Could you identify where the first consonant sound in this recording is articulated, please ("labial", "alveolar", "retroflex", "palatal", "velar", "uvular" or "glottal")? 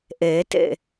glottal